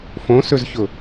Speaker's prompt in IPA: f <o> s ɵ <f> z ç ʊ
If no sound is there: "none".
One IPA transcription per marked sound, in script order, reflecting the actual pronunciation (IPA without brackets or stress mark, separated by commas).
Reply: õ, none